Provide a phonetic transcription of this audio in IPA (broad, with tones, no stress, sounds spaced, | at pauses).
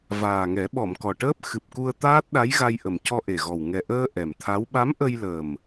v aː˨˩ ŋ ɛ˨˩˦ ɓ ɔ˨˩˨ m k ɔ˨˩ ʈ əː˦˥ p̚ x ɨ˨˩ p̚ k u˧ ə̯ t̪ aː˦˥ t̚ ɗ a˧˥ j ɣ a˧ j ʔ ə˨˩ m c ɔ˧ ʔ e˨˩ ɣ ɔ˨˩ w ŋ ɛ˨˩ ʔ əː˧ ʔ ɛ˨˩ m t̪ʰ a˧˥ w ɓ a˧˥ m ʔ ə˧ j l əː˨˩ m